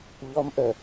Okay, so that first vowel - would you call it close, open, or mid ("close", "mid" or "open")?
mid